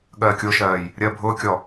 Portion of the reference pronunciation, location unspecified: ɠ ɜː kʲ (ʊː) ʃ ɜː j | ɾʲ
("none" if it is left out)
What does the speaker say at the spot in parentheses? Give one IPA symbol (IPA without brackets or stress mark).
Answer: ʊː